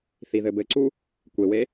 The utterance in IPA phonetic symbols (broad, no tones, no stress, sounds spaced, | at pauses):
θ i ð ɘ b ɘ ǀ u | kʷ e w e